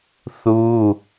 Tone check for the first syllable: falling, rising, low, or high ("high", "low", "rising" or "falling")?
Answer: high